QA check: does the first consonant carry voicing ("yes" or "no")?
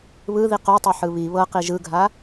yes